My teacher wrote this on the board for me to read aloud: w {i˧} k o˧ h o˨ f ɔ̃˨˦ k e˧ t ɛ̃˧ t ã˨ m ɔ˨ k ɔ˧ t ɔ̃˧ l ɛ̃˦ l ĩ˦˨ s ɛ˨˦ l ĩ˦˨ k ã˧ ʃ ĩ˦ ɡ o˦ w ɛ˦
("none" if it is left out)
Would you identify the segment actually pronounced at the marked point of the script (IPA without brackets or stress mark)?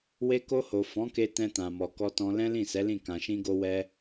e˧